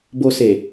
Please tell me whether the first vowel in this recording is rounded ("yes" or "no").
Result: yes